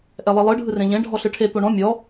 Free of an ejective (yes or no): yes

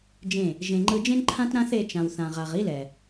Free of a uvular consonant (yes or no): no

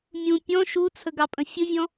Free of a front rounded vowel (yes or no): yes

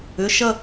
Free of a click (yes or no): yes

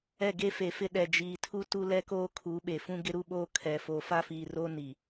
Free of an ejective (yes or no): yes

